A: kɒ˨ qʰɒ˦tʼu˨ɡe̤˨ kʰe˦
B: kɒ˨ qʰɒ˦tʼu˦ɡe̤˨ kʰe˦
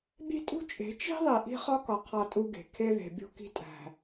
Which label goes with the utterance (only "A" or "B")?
B